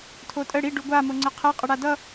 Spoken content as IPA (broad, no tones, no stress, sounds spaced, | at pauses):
tʰ o tʼ ə ɽ i ɖ u ɡʷ a m o ŋ͡ǀ ə qʰ ɛ qʼ ə ɽ a d ʌ